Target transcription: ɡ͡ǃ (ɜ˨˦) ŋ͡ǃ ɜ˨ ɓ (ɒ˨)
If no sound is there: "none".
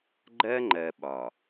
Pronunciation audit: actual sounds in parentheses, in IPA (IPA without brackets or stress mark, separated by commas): ɜ˦, ɒ˨